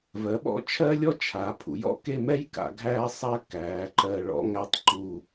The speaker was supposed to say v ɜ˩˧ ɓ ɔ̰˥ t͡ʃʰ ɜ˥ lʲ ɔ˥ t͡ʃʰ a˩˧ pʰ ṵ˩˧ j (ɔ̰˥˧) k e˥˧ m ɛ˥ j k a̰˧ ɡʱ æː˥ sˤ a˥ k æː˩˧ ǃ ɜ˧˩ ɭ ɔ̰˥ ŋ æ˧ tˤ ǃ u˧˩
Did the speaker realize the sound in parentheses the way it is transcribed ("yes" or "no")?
no